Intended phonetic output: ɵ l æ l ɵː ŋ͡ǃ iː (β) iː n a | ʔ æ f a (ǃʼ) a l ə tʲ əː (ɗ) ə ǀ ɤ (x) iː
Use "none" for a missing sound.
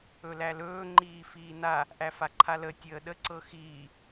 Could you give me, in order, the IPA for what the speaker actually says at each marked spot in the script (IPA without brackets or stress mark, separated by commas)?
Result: f, ǃʰ, ɗ, x